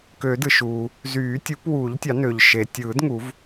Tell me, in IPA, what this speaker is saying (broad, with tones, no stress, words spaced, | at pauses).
kø˨˩˦dɯ˩ʃuː˩ | zyː˨˩˦tʲu˨˩˦pwuː˨˩˦ʎtʲɑ˨˩˦ nø˩ʎʃe˩ tʲɯː˨˩˦dŋu˨˩˦v